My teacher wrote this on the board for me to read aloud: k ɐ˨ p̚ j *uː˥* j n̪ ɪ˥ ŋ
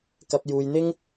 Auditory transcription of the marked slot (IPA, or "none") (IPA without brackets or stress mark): uː˨